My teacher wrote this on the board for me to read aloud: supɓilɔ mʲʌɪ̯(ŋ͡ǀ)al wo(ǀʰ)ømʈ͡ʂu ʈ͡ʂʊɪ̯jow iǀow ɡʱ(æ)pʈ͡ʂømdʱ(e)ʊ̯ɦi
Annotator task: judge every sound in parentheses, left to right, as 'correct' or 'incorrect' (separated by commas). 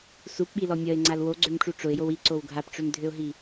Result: correct, incorrect, incorrect, incorrect